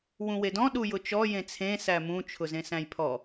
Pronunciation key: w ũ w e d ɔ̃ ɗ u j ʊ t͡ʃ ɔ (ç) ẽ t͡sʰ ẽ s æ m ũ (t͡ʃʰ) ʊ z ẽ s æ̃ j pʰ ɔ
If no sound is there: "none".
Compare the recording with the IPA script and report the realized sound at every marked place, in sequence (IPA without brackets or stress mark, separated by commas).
j, t͡ʃʰ